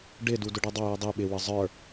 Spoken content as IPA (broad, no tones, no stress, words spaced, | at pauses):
ɖɪdu dʊɖidˤɑju dˤi ɓɪwə zˤə˞